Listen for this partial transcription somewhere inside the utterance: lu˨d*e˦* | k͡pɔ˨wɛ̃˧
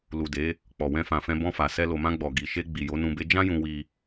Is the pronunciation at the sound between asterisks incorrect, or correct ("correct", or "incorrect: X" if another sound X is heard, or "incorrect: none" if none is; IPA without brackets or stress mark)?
incorrect: e˨˦